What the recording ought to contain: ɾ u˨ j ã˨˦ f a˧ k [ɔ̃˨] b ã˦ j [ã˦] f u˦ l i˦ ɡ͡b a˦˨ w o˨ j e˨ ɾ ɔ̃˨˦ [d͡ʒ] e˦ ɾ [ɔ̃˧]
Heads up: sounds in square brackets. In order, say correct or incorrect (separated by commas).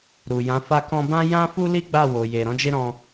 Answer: incorrect, correct, correct, correct